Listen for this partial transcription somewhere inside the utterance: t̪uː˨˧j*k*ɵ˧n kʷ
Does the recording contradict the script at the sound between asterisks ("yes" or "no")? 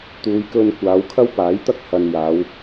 no